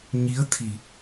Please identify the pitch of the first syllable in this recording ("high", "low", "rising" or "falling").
rising